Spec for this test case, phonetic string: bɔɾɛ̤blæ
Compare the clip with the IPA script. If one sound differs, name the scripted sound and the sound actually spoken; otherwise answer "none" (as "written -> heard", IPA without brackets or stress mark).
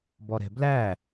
none